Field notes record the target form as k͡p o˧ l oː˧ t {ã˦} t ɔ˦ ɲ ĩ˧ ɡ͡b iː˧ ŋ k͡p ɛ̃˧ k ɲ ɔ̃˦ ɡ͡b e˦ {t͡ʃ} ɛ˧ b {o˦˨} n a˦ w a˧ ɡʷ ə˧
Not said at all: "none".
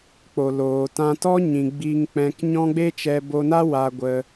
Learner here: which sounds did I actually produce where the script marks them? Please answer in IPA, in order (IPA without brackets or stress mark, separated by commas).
ã˧, t͡ʃ, o˧